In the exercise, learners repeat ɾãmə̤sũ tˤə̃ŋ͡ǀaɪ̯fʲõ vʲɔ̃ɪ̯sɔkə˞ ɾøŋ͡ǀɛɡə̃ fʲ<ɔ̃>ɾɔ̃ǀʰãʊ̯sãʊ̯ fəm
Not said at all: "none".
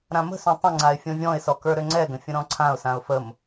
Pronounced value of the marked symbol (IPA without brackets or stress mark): ə̃